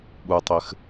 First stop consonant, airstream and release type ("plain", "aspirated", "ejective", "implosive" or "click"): implosive